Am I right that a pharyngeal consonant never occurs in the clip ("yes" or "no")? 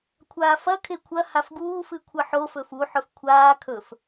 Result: no